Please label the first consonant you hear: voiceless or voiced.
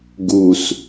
voiced